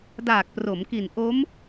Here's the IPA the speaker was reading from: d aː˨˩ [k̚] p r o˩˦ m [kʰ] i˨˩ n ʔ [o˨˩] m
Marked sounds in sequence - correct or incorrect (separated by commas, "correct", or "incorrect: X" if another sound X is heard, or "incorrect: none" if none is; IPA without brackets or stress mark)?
correct, incorrect: k, incorrect: o˦˥